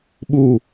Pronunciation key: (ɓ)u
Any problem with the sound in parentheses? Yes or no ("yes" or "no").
no